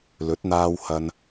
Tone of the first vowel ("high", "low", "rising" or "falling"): rising